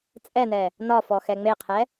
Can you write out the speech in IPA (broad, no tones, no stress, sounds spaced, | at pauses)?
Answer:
t͡sʼ ɛ n ɛ | n ɒ f ɔ x ɛ ŋ͡m e qʰ ɛ